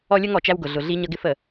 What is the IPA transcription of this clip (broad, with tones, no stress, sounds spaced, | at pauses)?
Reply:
ɔ˦ lʲ ə˦ ŋ ɔ˨ t͡ʃ æ˦ w ɡ ʊ˨ ɮ ʊ˨ ɮ i˦ ɲ ʌ˦ ɡ ɪ˦ f ə˨